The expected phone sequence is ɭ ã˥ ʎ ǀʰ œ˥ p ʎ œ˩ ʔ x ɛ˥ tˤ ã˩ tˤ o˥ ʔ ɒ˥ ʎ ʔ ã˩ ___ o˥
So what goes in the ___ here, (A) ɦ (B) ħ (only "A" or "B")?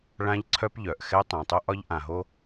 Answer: A